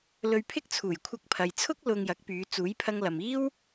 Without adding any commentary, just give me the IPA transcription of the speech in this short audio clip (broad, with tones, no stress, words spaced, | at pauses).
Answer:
lɵ˧ɥpʰɪ˥k̚ t͡sʰuː˨˩jkʷʰɐ˧k̚pʰɐ˨jt͡sʰʊ˥k̚ lʊ˧ŋjɐ˨˥k̚pyː˨˧ t͡suː˨˥jpʰɐ˧ŋlɐ˨m iː˥w